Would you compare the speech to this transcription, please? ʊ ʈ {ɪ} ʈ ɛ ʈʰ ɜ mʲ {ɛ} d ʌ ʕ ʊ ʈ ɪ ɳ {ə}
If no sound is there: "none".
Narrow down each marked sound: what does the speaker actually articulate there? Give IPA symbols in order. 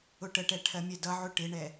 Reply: ə, ɛ, ɛ

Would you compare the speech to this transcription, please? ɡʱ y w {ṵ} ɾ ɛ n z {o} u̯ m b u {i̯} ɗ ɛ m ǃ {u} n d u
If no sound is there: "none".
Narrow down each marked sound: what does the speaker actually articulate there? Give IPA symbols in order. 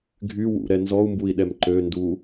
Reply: ṵ, ɔ, i̯, ø

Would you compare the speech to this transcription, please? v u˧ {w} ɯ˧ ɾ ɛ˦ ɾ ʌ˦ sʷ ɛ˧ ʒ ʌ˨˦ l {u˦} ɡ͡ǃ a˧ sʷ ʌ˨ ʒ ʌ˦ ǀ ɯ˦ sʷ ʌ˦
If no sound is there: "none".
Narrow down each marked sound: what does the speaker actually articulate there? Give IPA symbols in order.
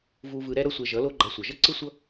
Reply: v, o˦

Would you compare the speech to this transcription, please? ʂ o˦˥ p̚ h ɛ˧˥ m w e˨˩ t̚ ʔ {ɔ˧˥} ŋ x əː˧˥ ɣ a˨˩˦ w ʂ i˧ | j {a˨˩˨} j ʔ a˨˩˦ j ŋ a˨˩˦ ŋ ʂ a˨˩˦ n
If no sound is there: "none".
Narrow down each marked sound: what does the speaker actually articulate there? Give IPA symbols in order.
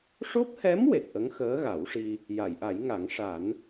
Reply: ə˧˥, a˨˩˨

